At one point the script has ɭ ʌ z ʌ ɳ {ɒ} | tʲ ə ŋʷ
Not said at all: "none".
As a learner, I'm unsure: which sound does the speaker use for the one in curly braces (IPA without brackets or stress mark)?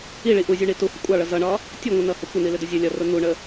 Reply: ɒ